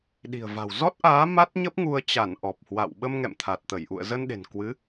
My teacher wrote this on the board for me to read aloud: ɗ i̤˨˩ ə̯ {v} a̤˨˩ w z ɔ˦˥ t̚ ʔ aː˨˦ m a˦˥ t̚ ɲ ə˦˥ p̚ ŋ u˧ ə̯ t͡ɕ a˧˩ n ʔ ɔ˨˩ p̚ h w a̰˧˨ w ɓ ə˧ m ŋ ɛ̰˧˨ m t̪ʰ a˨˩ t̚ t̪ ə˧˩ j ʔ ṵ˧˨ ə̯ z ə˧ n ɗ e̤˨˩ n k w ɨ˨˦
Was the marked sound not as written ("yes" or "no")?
no